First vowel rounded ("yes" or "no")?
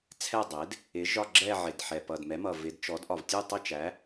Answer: no